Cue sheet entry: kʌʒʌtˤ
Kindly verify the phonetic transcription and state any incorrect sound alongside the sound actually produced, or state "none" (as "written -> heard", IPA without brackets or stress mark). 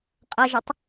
k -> qʼ